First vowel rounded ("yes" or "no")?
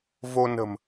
yes